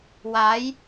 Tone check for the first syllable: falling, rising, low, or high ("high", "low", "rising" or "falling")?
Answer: rising